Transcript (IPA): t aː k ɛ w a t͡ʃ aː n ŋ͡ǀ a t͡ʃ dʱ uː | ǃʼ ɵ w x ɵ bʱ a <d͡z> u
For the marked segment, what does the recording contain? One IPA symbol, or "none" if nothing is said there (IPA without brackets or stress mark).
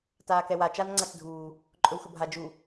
d͡ʒ